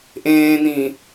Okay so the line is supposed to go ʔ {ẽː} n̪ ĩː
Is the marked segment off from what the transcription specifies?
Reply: no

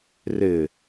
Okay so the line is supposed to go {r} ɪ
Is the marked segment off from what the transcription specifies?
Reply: no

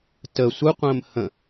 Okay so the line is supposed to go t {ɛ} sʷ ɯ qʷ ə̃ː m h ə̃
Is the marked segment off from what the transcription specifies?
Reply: yes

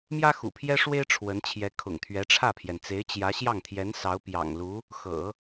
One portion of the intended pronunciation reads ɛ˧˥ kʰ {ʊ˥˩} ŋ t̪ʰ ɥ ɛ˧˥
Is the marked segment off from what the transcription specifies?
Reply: yes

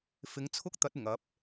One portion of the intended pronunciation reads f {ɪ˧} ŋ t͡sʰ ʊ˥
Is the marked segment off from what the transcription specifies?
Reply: yes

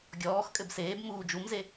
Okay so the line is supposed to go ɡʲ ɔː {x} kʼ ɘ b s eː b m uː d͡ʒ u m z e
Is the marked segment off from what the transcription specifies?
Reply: no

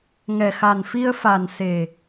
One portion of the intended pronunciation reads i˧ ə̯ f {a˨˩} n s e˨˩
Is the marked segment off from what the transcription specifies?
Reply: no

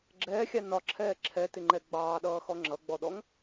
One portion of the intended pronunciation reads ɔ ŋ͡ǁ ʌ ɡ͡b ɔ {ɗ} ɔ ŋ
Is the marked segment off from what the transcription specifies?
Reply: no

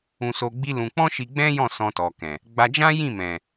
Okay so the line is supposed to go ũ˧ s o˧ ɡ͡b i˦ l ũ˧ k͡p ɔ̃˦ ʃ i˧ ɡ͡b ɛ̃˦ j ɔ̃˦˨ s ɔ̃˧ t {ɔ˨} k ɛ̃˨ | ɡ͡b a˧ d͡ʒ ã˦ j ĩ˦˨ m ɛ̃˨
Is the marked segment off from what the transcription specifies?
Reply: no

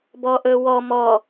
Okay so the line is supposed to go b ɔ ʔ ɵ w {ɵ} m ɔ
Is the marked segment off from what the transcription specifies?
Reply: yes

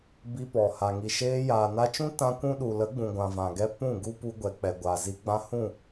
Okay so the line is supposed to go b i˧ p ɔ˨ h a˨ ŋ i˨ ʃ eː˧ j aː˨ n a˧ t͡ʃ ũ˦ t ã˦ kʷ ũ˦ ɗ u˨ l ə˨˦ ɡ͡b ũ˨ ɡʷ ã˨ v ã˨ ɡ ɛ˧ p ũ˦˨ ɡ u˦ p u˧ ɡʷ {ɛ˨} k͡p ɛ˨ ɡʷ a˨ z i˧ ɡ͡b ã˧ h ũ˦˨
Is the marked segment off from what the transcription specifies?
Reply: no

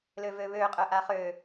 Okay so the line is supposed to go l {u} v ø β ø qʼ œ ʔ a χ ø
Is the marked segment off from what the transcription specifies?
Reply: yes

